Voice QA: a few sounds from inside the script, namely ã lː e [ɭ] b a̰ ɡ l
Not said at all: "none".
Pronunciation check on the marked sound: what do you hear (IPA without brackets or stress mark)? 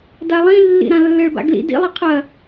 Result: ɭ